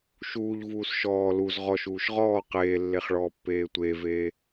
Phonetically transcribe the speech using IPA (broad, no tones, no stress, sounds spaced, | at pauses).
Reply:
ʃ uː ʎ v uː s ʃ ɔː l u z ʁ ɔ ʃ uː ʃ ʁ ɔː q eː lː e χ ɭ ɔː pː eː tʷ eː v eː